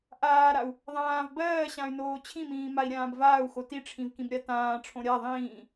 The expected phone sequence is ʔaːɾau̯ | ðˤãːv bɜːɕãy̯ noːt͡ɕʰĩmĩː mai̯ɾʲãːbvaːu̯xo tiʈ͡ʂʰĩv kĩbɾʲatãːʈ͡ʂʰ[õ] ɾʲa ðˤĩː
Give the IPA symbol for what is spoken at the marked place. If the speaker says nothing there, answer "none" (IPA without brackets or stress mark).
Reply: õ